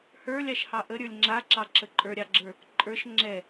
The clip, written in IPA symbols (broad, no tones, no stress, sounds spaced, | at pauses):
h ə˞ lʲ ɑ ʃ h ɑ ʔ ə ɾʲ ə˞ lʲ ŋ͡ǁ a ǁ ɑ ǁ ə ǃʼ ə˞ ɾʲ ɑ ɡ͡ǁ ə˞ | ǃʼ ə˞ ʃ ŋ͡ǁ ɛ